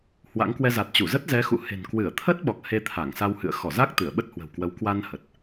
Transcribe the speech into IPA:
hwa̰˧˥ŋkwɛ˧ za˨˩t̚t͡ɕu˧˩zə˦˥t̚ zɛ˨˦xṵ˧˨he̤˨˩n kwɨ˧˩ə̯t̪ʰə˦˥t̚ɓɔ˨˩k̚ he˧t̪ʰa˧˩ŋsa˧whɨ̰˧˨ə̯ xɔ˧˩za˦˥k̚ t̪ɨ˧˩ə̯ɓə˦˥t̚hwə̤˨˩wkwə˨˦w kwa˧n hə˨˩t̚

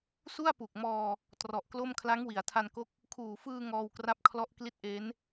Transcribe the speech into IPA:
su˥˩a̯pu˨˩k̚mɔː˧ | trɔ˨˩ʔklo˥˩m kʰla˦˥ŋwi˩˦a̯tʰa˧nko˦˥k̚ | kʰuː˨˩fɯː˧ ŋɔː˧wkra˦˥p̚ kʰlɔ˦˥ʔ kli˦˥t̚ ʔe˦˥n

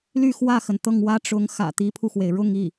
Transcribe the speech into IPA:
ly˥˧xwä˥˩xə˩n t̪ɤ˥˩ŋwä˥ʈ͡ʂʊ˧˥ŋ xä̰˨˩ t̪i˧˥pʰu˧xwe˩ɪ̯ ɻʊ˥˧ŋi˥˩

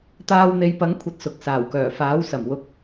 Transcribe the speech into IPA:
t̪aː˧wn̪e˨˧jpɐ˨˥ŋ kʷʰɐ˧t̚sʊ˨k̚ saː˨˩wkœː˨˩faː˨˥w sɐ˨˩mwʊ˨˥k̚

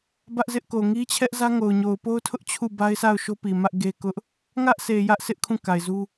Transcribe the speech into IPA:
bä˦ʔzɪ˦ʔ ko˨ŋi˦t͡ɕʰɛ˦ʔzä˦ ŋo˨ʊ̯ɲo˨ʊ̯ po˦ʊ̯tʰʊ˦ʔ t͡ɕʰu˦˨ba˦ɪ̯sa˦˨ʊ̯ ʃo˦pi˨ mä˦ʔɡe˦kʊ˦ʔ | ŋä˦ʔsʰe˨ jä˦ʔsɪ˦ʔ kʰũ˦˨ka˨ɪ̯zu˦

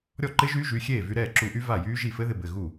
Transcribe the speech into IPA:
ɾʲɔ˥˩ǃɪ˦˥ʒyː˦˥ ʒy˩˧˩xʲeː˥˩ vy˧ɾɛː˥˩ǁu˧ʔy˦˥ va˥˩jyː˦˥ʒi˥˩ fɘ˦˥ðɪ˧bɘ˩˧˩ ɣu˥˩

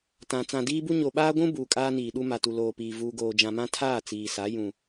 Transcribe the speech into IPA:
tã˨ t͡sã˨diː˦bu˦ ɲo˨ɓaː˦ɡʷũ˦ buː˨kʼaː˦niː˨ɗu˦ ma˨tu˨loː˨piː˨ vuː˨ɡoː˨d͡ʒã˨mã˦ tʰaː˦˨t͡siː˨sa˨˦ jũ˦

